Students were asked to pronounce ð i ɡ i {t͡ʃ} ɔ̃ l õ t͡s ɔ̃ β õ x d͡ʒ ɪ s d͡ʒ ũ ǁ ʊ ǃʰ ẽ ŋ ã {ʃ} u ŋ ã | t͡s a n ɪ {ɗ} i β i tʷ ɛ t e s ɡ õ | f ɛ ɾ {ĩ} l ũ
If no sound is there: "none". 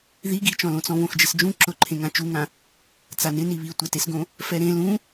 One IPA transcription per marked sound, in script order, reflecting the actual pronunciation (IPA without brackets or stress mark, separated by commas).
t͡ʃ, t͡ʃ, n, ẽ